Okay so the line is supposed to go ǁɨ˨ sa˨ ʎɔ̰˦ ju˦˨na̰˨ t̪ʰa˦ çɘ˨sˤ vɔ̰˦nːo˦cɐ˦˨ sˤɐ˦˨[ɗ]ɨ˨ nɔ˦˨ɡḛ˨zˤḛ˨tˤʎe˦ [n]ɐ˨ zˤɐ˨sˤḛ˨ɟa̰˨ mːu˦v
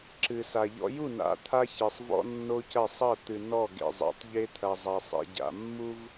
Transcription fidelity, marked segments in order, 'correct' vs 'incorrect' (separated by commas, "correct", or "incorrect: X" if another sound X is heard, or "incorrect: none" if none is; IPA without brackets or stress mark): incorrect: t̪, incorrect: t̪ʰ